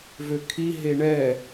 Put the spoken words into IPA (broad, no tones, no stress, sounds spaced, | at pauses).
v ø kʰ i ɦ e ɳ ɛ